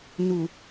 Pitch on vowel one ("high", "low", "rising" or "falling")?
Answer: low